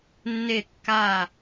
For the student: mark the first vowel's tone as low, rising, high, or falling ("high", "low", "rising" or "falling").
falling